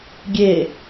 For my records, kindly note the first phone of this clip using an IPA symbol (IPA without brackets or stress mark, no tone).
ɡʲ